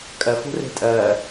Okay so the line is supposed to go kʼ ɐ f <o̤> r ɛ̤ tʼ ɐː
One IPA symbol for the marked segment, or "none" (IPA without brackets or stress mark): o̤